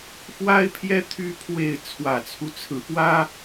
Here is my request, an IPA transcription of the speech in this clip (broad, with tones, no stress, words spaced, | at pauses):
fwa˥ɪ̯pʰjɛ˥ t̪ʰy˥pʰwe˥˩ɪ̯ t͡sʰwä˨˩t͡sʰu˦t͡sʰɹ̩˧˥pwä˥